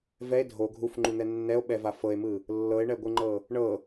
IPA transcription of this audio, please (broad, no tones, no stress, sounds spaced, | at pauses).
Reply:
v ɛ e̯ dʱ o ɡʱ u f ŋ͡ǃ u n̪ ɛ nː ɛ o̯ ɓ ɛ v a f ɤ e̯ m ɯ | lː ɤ e̯ ɳ ɛ ɡʷ ɯ ŋ͡ǃ ɤ | ɳ ɤ